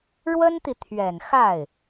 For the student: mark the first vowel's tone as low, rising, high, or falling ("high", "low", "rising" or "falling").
high